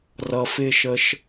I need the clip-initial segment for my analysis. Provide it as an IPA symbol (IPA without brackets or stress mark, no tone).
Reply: r